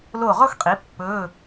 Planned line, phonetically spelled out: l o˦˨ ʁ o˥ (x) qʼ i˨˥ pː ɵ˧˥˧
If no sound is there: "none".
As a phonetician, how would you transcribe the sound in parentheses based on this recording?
x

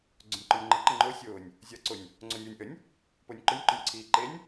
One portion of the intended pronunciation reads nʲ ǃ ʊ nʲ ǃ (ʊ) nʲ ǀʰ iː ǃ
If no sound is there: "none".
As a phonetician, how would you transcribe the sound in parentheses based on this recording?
ʊ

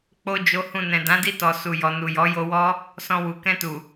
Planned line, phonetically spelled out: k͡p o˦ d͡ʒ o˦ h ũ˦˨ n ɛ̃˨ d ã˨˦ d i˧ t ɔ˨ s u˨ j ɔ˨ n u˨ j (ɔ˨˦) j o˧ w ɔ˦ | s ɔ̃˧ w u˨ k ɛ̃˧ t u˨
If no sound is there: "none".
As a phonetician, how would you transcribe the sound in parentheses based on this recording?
ɔ˨˦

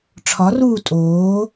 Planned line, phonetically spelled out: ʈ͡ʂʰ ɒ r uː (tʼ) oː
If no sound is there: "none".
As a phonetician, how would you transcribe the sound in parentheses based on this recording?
tʼ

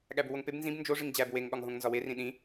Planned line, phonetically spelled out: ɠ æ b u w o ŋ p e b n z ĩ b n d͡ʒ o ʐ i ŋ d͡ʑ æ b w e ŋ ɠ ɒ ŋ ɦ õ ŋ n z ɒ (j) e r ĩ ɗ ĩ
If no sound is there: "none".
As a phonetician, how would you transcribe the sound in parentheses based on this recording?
w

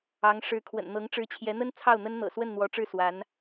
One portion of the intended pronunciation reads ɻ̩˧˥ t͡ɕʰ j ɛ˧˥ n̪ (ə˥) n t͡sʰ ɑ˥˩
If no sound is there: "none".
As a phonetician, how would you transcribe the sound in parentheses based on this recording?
ə˥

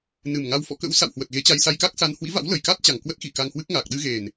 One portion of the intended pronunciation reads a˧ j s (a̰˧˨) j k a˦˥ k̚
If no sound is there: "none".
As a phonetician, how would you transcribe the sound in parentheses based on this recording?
a˧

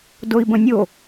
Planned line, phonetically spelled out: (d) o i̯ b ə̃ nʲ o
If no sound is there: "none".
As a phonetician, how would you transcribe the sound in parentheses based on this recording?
d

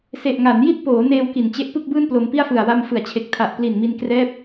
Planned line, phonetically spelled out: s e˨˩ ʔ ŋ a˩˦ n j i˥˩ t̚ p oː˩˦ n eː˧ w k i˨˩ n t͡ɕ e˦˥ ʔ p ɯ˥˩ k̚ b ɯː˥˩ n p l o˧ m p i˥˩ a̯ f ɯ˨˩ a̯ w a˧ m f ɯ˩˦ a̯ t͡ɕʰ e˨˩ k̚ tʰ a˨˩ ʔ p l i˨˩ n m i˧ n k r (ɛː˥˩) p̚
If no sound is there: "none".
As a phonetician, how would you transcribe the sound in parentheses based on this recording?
ɛː˥˩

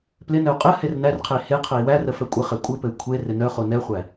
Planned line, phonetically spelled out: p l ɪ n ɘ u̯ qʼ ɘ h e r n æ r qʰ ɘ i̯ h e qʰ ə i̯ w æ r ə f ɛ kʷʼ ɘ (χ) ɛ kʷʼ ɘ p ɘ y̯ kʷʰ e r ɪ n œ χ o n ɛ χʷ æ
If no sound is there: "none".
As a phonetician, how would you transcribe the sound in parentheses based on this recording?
χ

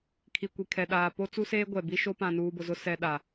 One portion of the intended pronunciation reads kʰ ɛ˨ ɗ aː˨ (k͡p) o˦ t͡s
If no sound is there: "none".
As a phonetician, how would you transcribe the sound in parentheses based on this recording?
p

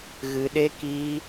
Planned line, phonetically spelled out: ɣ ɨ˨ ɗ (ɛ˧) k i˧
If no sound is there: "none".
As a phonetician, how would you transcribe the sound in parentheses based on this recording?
e˧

